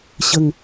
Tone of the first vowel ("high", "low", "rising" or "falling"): falling